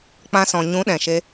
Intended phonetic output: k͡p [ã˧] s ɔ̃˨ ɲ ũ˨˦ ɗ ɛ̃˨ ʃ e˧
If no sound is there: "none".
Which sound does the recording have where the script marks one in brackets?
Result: ã˧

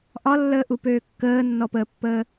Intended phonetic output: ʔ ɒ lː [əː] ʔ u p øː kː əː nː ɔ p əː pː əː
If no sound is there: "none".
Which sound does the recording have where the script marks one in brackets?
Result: əː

